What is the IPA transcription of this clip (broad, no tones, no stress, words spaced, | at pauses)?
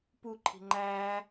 puǃʰi̤ ŋ͡ǃæ